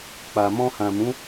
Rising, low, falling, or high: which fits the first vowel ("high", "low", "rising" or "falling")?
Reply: low